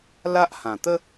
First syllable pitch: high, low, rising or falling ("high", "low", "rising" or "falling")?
high